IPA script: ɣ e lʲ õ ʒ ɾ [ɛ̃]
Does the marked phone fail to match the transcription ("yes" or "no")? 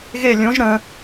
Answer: yes